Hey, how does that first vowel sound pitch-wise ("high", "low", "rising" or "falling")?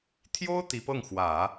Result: high